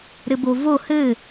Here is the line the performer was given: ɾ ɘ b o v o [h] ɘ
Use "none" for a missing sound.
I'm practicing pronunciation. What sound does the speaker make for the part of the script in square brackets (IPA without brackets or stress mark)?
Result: h